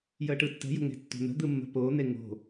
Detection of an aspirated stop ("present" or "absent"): absent